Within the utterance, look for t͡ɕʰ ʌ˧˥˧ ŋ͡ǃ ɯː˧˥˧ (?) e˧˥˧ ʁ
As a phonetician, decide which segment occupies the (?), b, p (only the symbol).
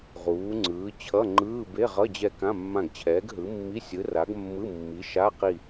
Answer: b